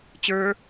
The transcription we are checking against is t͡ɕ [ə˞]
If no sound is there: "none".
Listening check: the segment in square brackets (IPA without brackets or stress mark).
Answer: ə˞